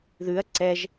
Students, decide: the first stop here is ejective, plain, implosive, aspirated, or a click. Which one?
click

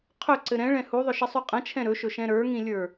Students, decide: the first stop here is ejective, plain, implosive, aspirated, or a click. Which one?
aspirated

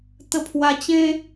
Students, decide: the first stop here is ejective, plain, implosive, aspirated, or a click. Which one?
plain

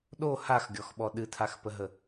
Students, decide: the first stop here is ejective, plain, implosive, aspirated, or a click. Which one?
implosive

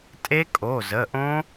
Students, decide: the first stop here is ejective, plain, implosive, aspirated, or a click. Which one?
ejective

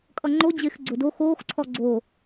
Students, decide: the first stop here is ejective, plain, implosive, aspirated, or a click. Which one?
ejective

